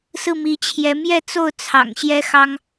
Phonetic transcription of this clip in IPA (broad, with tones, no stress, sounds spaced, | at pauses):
s ɹ̩˥˩ m i˧˥ t͡ɕʰ j ɛ˧˥ m j ɛ˥˧ t͡s o˥˩ ʊ̯ t͡sʰ ɑ̰˨˩ ŋ ɕ j ɛ˥ x ɑ˥ ŋ